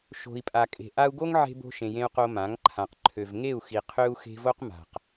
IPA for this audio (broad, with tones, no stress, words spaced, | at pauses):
ʃo̤˨i̯pʼa˨kʼe̤˨ ʔa˧u̯ɡo˦ŋʕe̤˧ bo̤˧ʃẽ˨jẽ˧u̯ qo˧mã˨˦ŋǃʰã˨q ǃʰø˨vŋe˦˨u̯xi˨ qʰø˦u̯xe̤˦ vo˦q ma̤˨q